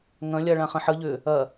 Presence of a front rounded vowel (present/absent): present